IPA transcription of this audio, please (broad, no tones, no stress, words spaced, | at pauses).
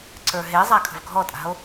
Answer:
ǀə˞ɦezˤa kʰə̤vɡʱɔtʼa̤o̯